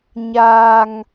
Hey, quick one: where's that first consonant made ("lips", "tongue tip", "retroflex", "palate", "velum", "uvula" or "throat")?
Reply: palate